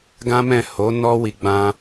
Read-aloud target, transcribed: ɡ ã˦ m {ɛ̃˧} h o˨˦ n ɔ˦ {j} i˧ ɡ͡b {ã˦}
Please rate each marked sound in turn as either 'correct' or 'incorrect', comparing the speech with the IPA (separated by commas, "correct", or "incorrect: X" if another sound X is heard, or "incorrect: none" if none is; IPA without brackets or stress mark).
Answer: incorrect: ɛ̃˦˨, incorrect: w, correct